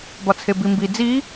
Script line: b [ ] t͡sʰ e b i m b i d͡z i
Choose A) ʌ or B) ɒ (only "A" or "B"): B